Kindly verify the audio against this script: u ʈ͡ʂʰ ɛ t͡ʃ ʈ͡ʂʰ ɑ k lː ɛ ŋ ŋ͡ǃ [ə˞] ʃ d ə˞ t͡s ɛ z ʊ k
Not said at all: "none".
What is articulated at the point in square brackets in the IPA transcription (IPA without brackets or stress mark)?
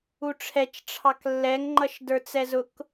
ʌ